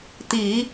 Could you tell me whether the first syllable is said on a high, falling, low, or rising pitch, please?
low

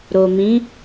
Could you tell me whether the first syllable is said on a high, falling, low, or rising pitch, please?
low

